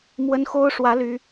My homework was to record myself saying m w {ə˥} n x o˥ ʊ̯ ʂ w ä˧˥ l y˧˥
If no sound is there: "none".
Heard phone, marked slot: ə˥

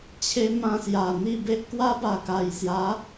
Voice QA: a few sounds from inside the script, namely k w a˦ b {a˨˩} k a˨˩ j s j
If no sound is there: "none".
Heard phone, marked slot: a˨˩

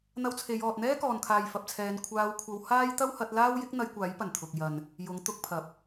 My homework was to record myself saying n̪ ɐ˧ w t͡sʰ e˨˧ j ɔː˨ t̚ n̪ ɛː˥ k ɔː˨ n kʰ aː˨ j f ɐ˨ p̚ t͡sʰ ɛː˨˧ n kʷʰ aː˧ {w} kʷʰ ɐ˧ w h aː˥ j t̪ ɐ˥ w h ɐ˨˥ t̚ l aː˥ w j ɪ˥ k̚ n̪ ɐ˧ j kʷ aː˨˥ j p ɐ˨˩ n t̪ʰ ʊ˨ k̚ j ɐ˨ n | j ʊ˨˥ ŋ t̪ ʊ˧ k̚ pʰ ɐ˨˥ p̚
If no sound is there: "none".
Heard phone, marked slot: w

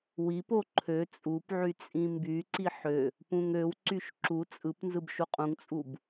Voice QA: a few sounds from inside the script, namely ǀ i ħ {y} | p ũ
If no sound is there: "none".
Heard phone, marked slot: ø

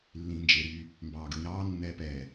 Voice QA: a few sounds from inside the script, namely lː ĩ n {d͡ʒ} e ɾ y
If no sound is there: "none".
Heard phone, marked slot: d͡ʒ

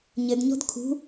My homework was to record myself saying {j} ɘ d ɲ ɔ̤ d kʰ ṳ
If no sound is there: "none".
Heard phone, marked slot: ɲ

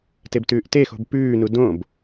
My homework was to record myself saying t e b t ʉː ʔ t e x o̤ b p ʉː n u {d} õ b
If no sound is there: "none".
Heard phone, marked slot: d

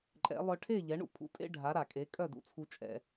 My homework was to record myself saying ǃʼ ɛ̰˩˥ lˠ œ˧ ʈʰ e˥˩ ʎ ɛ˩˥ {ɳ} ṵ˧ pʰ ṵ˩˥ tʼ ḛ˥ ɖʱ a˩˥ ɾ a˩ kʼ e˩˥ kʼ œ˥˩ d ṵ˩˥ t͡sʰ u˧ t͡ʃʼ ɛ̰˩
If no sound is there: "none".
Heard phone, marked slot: ɳ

